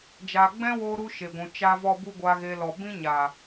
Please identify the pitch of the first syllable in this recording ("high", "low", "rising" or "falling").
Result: low